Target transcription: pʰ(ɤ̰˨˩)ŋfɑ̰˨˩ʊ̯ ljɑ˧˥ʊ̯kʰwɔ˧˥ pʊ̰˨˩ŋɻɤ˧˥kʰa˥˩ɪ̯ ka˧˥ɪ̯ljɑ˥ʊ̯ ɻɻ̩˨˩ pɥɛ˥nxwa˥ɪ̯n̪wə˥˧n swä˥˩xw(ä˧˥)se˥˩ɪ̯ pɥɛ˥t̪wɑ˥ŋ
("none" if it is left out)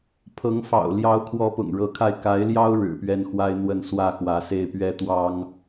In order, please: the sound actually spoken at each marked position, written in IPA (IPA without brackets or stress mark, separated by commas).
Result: ɤ˧˥, ä˧˥